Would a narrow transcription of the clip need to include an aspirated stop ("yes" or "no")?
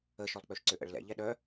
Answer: no